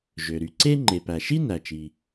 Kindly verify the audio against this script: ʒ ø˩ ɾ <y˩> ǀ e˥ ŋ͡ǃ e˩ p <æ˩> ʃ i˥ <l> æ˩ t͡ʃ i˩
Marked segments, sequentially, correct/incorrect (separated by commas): correct, correct, incorrect